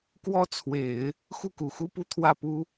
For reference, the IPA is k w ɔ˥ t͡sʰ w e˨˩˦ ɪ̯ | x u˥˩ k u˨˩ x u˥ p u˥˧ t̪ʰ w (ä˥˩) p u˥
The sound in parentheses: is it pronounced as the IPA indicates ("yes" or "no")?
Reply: yes